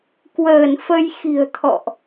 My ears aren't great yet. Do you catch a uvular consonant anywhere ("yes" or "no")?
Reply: no